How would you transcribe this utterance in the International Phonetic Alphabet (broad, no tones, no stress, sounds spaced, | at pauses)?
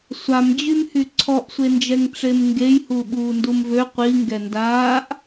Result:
sʷ a m d͡ʑ y m h y ǀʰ ɔ ʔ sʷ e n d͡ʒ ɛ ŋ ʈ͡ʂ e m ŋ ɡ e j h u ɓ uː n d u m v ø qʷ i ŋ ɡ ɛ n d aː ʔ